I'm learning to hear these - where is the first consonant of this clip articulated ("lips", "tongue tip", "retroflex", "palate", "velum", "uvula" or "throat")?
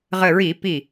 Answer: uvula